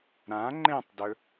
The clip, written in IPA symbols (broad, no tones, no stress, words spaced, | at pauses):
ɾã ŋ͡ǃẽtˤdɵ